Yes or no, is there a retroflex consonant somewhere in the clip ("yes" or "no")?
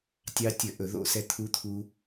no